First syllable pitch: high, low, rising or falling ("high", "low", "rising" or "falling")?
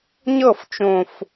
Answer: falling